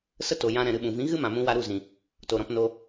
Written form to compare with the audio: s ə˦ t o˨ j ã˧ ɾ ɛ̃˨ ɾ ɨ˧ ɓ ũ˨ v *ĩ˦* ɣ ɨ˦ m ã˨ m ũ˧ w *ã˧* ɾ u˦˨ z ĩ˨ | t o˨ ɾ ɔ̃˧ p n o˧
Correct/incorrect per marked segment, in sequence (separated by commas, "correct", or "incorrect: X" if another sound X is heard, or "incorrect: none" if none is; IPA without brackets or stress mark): incorrect: ĩ˨˦, incorrect: a˧